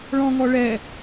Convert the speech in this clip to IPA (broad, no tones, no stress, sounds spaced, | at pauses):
ɭ ɔ̃ ŋ ɔ ɭ ɛ